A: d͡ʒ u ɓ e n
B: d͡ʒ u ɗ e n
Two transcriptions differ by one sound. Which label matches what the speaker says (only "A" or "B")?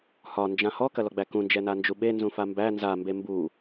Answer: A